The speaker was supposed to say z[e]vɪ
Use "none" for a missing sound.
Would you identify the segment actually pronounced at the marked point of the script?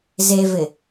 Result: e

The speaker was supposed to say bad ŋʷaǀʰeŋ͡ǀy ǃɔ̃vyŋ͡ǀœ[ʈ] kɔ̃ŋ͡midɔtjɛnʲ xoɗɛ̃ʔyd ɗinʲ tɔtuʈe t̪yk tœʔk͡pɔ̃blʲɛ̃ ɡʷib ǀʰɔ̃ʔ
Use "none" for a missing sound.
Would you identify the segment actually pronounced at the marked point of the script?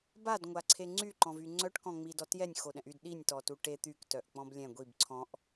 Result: ʈ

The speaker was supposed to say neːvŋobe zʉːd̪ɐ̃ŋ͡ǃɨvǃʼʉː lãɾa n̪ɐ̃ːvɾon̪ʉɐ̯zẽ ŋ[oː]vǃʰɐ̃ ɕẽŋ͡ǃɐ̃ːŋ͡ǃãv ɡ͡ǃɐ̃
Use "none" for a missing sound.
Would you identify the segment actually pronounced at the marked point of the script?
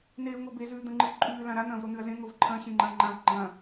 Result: o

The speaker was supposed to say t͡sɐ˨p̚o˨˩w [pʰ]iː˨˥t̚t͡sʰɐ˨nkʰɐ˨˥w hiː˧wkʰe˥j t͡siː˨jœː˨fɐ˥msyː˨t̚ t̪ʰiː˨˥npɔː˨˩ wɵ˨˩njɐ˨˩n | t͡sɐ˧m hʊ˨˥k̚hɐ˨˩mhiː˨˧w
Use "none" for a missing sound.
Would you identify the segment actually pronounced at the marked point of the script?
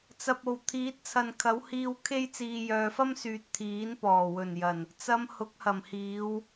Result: t̪ʰ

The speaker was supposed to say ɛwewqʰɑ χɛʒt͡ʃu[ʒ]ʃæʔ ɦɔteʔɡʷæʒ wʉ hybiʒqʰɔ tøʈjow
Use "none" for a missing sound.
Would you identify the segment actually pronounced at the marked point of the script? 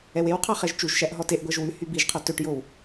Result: ʒ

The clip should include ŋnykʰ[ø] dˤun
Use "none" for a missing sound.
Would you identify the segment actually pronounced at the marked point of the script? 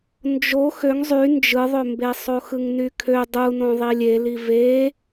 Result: ø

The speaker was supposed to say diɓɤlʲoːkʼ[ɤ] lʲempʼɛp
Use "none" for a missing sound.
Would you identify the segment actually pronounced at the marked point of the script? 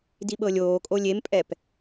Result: o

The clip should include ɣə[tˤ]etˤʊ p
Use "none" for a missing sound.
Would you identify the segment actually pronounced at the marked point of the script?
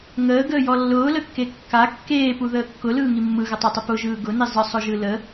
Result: tˤ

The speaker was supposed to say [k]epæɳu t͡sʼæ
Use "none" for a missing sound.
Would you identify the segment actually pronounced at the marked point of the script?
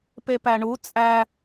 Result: p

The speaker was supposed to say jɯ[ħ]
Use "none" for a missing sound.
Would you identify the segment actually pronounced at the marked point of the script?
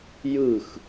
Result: x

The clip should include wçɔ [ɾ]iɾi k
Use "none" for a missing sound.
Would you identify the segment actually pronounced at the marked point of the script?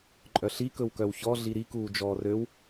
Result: ɮ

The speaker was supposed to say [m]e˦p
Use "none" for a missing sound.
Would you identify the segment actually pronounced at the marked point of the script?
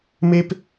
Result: m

